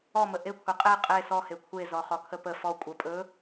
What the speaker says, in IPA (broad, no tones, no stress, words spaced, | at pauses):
ɔmə ʔekʷʰe qʼe qʼe sɔhe kʷʰezɔ χɔkʰəpə fɔ kʷʼə pʼɵ